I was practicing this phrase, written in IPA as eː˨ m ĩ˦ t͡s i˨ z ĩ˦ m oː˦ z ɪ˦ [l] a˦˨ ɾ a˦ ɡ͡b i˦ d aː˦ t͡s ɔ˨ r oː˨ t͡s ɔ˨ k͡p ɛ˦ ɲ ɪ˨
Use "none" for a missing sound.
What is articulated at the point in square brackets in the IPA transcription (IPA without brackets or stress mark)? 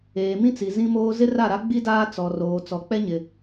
r